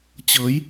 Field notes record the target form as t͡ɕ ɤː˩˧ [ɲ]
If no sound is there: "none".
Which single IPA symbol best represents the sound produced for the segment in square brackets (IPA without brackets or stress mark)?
j